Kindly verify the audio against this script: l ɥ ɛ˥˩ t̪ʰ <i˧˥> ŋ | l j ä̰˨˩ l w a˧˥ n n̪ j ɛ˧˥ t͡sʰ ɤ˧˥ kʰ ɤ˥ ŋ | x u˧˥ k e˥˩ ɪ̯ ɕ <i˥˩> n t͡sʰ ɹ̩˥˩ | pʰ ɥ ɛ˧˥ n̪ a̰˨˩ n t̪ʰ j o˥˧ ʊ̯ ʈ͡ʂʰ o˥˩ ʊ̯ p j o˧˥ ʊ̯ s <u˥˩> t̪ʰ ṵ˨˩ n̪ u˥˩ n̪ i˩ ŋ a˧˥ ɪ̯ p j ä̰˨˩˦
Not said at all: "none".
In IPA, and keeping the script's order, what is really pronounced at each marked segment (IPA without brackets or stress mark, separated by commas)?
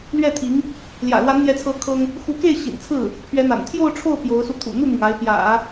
i˧˥, ḭ˨˩, u˧